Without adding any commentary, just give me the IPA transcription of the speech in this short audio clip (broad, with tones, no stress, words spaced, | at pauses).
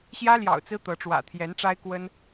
ɕjä˦ljɑ̰˨˩ʊ̯ t͡sɹ̩˦t̪ɤ˨˦ʈ͡ʂwä̰˨˩ t̪ʰjɛ˨˦nʈ͡ʂa˦ɪ̯kwə˦n